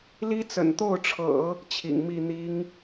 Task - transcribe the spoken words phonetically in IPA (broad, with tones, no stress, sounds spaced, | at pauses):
l i˥ t͡s ə̰˨˩ n t̪ o˥˩ ʊ̯ ʈ͡ʂʰ ɤ̰˨˩˦ | t͡ɕʰ ḭ˨˩ ŋ m i˥˩ n̪ i˧˥ ŋ